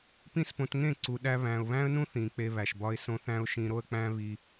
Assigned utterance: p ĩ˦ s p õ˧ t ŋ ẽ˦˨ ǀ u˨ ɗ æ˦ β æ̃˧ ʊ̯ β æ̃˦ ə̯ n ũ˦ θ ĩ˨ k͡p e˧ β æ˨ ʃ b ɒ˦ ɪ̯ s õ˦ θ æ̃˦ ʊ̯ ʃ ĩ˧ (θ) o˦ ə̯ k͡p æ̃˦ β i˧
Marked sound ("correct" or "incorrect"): incorrect